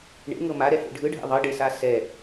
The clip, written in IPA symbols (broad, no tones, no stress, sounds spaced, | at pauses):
ɳ ḛ ŋ ɤ m a ɾ ɛ h ḛ ɖʱ ɯ ɖʱ ḛ ðˤ ɤ ɖ e s a s ɛ